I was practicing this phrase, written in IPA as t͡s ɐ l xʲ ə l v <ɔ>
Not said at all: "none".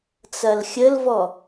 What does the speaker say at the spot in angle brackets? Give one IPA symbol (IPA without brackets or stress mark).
ɔ